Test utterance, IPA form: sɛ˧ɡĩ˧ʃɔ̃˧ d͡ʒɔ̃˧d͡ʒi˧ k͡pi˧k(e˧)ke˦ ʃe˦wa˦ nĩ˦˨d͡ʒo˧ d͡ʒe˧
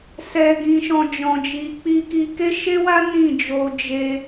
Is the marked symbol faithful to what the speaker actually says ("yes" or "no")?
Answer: no